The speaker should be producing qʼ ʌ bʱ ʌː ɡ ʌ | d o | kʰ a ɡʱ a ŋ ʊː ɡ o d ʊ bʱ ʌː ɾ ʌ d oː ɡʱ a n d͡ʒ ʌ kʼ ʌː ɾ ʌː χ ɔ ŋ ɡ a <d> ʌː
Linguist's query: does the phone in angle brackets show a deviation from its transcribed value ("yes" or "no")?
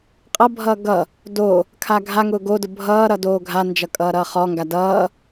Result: no